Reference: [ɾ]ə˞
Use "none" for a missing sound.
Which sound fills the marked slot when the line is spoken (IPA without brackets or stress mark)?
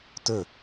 t